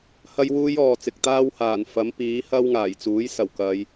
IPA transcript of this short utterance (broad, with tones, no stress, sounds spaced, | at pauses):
h ɐ˥ j w uː˥ j ɔː˨ t͡s ɪ˨ k̚ t̪ aː˥ w h aː˨˩ n f ɐ˨˥ m p iː˨˥ h ɐ˥ w ŋ aː˨˩ j t͡s uː˨˥ j s ɐ˨˩ w k ɐ˨˧ j